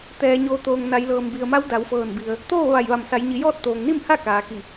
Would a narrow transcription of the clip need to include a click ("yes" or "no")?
no